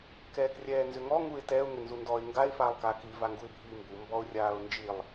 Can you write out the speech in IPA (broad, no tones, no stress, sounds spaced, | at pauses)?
k ɛː k rʲ ɛː n z ʏ ŋ ɔ ŋ u ɪ̯ t ɛ ʊ̯ ŋ ʏ n z u n d ɔ ɪ̯ ŋ ɡ a ɪ̯ f aː lˠ k aː k i v a ŋ ɡ u ɪ̯ bʱ iː m b u m b ɔ ʊ̯ rʲ aː ʊ̯ n d͡ʒ i lˠ